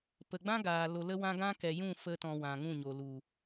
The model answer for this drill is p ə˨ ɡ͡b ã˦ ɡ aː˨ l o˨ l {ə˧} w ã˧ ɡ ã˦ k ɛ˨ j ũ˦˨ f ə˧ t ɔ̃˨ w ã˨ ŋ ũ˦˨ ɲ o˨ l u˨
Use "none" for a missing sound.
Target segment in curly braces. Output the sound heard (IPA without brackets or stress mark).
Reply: ə˧